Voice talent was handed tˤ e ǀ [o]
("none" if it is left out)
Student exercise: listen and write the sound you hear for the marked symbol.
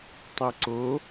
o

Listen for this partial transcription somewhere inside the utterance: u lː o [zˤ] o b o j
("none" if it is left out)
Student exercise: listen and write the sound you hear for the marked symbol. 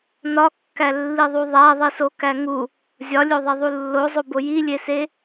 zˤ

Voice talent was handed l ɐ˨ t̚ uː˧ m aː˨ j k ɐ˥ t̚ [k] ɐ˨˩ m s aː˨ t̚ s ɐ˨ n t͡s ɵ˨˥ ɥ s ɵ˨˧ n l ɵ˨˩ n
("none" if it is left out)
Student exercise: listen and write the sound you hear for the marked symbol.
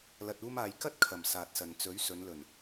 kʰ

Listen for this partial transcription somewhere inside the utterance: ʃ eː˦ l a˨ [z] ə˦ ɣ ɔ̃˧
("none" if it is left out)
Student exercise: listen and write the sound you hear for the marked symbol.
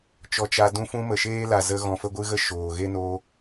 z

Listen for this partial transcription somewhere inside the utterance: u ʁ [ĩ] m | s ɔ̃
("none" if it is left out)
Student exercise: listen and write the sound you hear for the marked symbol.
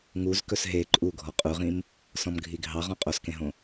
ĩ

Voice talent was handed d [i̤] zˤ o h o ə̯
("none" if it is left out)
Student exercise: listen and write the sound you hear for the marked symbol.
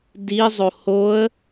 i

